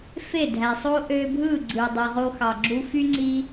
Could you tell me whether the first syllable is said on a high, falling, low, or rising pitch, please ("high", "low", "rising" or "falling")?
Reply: falling